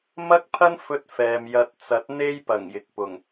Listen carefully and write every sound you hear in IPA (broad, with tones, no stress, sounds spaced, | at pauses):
m ɐ˥ k̚ pʰ ɐ˥ n f ɵ˧ t̚ f ɛː˨ m j ɐ˧ t̚ t͡s ɐ˨˥ t̚ n̪ e˥ j p ɐ˨˩ ŋ j ɪ˨ k̚ p ʊ˨˩ ŋ